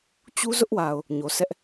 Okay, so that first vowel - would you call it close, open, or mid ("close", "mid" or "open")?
close